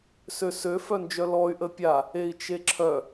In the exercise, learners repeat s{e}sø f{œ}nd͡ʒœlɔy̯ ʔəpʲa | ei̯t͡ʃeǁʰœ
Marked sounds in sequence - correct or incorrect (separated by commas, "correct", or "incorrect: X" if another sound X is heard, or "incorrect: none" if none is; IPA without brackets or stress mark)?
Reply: incorrect: ø, correct